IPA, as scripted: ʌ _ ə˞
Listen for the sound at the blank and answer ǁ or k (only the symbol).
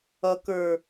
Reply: k